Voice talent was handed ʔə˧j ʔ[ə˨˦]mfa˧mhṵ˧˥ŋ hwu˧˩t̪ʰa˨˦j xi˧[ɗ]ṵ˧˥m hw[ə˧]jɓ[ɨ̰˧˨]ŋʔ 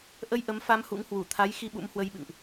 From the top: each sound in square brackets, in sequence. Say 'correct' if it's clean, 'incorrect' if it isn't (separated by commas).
correct, incorrect, correct, correct